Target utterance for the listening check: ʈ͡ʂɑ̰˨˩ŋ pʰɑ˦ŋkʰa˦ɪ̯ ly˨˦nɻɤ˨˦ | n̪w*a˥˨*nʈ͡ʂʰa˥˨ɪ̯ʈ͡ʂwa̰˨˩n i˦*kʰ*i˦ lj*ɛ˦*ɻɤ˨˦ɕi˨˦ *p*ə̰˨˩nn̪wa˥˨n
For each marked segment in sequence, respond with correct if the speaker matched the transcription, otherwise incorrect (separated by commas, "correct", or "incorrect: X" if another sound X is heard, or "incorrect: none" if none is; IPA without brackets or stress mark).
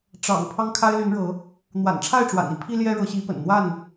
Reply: incorrect: a̰˨˩, incorrect: pʰ, correct, correct